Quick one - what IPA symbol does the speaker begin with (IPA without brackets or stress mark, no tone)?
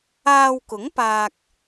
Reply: aː